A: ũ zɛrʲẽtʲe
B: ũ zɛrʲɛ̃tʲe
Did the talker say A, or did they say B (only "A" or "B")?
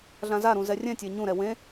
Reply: B